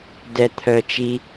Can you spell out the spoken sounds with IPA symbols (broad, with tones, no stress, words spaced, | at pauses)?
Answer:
dɛ˨t̪ʰœ˨t͡ʃi˧